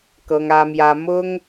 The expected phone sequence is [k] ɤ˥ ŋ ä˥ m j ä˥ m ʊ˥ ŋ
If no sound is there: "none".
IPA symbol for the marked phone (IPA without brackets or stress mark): k